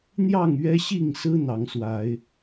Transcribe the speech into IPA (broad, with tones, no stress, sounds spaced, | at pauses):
n̪ j ɑ˥˨ ŋ ɥ ɛ˦ ɕ i˥˨ ŋ s ɹ̩˦ n̪ ɑ˨˦ ŋ s w a˨˦ ɪ̯